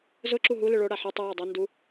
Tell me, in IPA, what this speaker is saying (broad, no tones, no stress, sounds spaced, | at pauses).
z ʊ ǁ u ɦ u l ɨ ɭ o ɽ a ħ ɨ tˤ ɨ j a dˤ ɨ n d u